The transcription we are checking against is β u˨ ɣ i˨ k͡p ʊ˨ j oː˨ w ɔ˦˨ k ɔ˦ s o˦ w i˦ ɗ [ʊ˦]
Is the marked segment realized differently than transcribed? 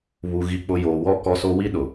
yes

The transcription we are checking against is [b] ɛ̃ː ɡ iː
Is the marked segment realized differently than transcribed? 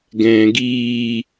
yes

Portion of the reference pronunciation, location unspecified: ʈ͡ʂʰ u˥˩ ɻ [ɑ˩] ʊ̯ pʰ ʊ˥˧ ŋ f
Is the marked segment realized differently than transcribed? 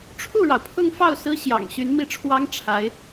no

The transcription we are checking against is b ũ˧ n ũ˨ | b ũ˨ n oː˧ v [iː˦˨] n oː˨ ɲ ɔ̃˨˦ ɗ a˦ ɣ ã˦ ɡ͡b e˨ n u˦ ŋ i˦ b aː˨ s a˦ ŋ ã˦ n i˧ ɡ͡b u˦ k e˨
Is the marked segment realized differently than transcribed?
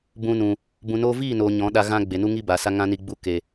no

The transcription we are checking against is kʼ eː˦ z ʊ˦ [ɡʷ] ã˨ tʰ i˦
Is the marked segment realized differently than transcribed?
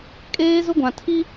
no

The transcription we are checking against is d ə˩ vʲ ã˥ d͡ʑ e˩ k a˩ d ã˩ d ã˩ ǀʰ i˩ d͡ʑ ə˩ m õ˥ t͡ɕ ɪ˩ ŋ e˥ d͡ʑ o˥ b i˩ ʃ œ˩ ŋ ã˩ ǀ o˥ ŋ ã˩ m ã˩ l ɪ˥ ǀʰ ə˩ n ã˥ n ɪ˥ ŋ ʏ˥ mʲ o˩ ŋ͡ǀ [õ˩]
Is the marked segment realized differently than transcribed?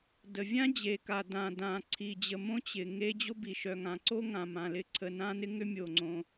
no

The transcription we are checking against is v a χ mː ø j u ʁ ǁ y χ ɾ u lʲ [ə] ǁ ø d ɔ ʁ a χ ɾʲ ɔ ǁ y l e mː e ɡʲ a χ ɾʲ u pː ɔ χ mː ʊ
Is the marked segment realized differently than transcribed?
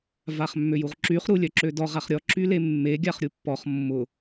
yes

